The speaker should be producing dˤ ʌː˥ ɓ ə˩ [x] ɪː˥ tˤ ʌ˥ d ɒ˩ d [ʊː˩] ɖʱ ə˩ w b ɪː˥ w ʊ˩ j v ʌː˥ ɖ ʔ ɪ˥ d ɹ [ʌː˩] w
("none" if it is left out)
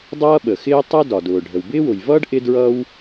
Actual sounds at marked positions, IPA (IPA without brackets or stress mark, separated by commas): x, ʊː˩, ʌː˥